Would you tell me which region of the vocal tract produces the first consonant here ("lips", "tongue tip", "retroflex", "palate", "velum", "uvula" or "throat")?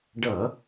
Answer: retroflex